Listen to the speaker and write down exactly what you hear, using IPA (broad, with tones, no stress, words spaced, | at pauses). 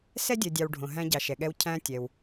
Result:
sɛ˥ dʲɜ˨dʲɑ˨wɖʱõ˩ ɦæ̃˦ɟɑ˨ʃɛ˩ɠɛ˦w cʰæ̃˦tʲɛ˩w